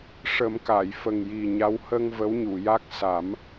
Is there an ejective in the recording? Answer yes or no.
no